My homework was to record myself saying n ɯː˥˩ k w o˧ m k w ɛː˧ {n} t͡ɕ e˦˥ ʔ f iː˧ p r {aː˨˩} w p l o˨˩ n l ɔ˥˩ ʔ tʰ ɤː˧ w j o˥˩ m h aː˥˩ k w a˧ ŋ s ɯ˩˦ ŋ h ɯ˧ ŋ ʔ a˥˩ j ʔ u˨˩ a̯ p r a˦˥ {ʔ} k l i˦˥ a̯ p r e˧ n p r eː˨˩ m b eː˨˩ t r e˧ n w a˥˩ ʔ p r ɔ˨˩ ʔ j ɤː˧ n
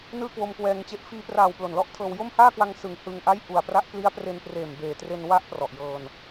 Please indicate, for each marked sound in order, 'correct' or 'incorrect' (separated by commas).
incorrect, correct, correct